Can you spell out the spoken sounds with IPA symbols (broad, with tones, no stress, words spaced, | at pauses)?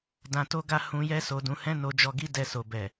dã˧to˦ɡa˦ hũ˧jɛ˦ so˧dũ˧hɛ̃˦ no˧d͡ʒɔ˧ɡi˦ dɛ˧so˨bɛ˨